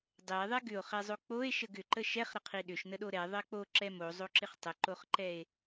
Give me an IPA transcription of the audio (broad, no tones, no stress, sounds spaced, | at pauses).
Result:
dˤ ɛ e̯ ðˤ ɛ ɡ ʏ o̯ χ ɛ zˤ o k͡p o e̯ ʃ ə ɡ ʏ ǃ ə ʃ ɛ χ ɾ ə qʰ i ɗ ʏ ʃ n ə ɗ o ɾ ɛ ðˤ ɜ k͡p o ǁ ɛ m o zˤ o ǁ ɪ χ tˤ ə ǃ o χ ǃ ɛ e̯